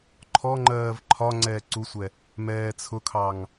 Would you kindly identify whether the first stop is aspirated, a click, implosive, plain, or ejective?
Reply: click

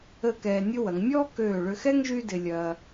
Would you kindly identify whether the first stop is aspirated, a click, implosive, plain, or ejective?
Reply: plain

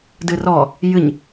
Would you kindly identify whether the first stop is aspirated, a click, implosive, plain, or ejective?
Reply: plain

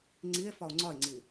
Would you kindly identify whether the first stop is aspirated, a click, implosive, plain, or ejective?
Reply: click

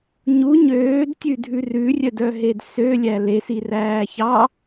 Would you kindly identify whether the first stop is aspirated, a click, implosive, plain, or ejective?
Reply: plain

